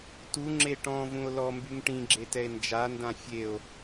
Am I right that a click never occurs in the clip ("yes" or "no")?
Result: no